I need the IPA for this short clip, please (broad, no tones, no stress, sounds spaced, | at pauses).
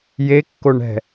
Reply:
j e kː o ɳ ɛ̤